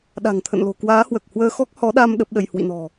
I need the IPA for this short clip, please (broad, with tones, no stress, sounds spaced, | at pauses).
ɗ a̤˨˩ ŋ t̪ʰ ə̰˧˨ n l o̤˨˩ k w aː˨˦ h w əː˨˩ k̚ h w əː˧ x ɔ˦˥ k̚ h ɔ˨˦ ɗ a˧ m ɗ ə˦˥ p̚ ɗ ə˧ j h w ḭ˧˨ n ɔ̤˨˩